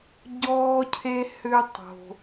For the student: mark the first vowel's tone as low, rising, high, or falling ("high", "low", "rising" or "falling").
high